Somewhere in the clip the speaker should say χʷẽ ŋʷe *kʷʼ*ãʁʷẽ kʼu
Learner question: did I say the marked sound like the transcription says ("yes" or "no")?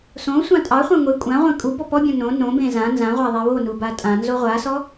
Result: yes